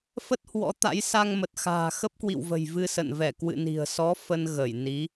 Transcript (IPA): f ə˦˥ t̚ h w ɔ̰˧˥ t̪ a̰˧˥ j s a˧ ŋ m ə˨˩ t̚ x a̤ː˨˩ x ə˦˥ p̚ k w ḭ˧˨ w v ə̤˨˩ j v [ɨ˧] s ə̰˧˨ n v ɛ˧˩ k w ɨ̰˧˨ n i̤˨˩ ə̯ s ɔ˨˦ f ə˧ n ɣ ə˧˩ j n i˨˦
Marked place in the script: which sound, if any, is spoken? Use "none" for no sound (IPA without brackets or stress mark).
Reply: ɨ˧